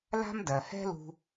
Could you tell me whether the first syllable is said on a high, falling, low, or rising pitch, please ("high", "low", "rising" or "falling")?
high